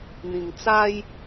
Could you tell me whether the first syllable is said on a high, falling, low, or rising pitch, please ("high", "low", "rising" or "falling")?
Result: low